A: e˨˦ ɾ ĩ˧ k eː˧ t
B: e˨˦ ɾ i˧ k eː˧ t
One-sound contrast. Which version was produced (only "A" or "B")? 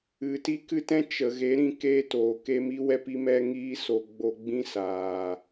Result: A